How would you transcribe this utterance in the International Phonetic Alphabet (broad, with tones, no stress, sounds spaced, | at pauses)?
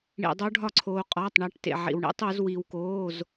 ɳ ḭ˧ dˤ o˦˥ ɖʱ ɒ˥˩ ǀʰ oː˧ qʼ ɒː˧˥˧ tˤ ɳ æ˦˥ ʈ t ḛ˧ ʕ ḭ˧ w ɳ ḭ˦˥ tˤ u˩˥ z w i˧ w k oː˧˥˧ z